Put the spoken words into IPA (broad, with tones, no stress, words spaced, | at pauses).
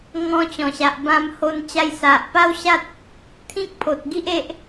ŋɔ̃˧t͡ɕɔ̃˨˩ɕa˨ʔ bã˧mho˧n t͡ɕa˧jsa˨ʔpa˦wɕa˦t̚ | t̪ʰĩ˦k̚pʰo˨t̚ ɡi˦ʔe˦ʔ